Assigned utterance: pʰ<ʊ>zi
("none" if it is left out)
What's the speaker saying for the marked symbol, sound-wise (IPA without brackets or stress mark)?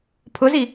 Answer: ʊ